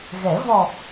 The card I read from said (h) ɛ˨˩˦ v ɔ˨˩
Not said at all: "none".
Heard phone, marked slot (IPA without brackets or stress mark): ɣ